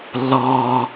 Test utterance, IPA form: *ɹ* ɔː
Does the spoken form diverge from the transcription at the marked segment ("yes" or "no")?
yes